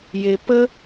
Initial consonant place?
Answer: palatal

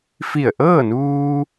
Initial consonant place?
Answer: labial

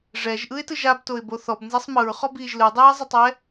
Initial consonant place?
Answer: retroflex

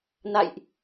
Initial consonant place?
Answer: alveolar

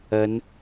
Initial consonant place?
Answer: alveolar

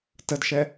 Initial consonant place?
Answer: alveolar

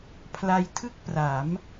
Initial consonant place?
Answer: labial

